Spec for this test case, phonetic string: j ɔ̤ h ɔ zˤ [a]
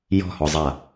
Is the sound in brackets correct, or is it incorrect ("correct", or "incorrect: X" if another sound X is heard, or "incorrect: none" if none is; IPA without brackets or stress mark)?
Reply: correct